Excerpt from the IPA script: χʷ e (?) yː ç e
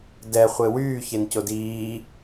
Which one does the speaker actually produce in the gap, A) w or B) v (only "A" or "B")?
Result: A